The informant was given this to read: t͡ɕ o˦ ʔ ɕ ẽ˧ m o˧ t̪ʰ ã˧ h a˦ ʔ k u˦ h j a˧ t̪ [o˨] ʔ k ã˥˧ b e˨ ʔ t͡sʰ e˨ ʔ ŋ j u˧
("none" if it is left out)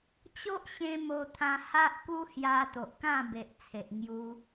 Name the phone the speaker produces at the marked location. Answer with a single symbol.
o˨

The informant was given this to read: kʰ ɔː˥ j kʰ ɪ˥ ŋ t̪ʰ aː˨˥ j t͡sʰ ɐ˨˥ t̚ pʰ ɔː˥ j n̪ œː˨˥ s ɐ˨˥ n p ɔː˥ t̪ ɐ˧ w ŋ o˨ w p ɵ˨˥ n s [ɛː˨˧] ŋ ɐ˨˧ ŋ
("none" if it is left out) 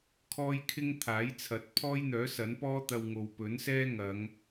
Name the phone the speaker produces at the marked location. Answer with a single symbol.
ɛː˥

